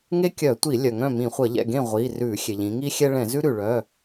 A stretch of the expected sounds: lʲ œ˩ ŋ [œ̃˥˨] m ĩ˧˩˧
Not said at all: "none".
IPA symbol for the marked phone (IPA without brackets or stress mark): œ̃˥˨